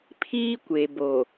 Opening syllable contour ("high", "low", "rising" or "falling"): high